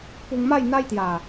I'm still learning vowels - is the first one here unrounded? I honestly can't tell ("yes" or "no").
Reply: no